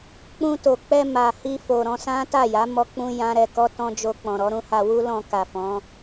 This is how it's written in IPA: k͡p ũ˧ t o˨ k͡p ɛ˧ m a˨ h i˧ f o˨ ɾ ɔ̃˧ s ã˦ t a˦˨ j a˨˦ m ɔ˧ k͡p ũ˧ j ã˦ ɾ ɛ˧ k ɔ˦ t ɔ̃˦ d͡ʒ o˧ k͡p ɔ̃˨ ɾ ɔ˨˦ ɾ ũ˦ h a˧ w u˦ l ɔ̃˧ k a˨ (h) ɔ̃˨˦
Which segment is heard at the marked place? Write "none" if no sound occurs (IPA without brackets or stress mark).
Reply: f